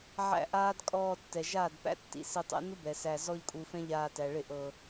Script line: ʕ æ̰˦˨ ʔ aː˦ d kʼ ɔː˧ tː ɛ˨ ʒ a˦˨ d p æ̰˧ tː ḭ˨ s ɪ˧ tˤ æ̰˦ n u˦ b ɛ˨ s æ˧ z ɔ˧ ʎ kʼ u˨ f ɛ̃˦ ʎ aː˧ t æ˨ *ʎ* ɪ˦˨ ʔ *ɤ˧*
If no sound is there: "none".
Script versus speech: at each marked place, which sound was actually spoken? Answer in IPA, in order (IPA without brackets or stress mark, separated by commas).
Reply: ɭ, ɤ˧